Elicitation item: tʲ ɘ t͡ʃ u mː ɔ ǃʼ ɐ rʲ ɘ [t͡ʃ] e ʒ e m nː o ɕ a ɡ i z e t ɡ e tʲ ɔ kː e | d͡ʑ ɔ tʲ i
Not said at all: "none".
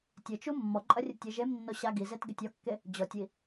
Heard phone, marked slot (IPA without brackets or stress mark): tʲ